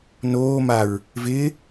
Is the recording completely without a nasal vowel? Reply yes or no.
yes